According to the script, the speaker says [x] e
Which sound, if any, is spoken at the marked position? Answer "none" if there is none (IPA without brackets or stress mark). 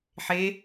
ħ